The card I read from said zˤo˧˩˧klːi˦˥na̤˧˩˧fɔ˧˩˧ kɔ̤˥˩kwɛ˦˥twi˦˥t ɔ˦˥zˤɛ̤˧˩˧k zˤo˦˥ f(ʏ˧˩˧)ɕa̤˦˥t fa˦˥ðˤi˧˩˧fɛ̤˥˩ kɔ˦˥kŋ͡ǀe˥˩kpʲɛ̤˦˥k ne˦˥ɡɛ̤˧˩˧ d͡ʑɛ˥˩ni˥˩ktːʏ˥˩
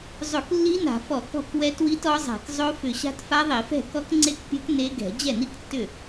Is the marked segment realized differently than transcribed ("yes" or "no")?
no